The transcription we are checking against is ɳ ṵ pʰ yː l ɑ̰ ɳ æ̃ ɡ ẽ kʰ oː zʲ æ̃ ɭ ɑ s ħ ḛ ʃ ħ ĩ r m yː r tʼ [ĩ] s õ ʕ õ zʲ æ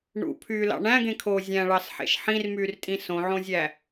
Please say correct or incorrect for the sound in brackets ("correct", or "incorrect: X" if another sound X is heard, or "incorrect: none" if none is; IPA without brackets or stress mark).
correct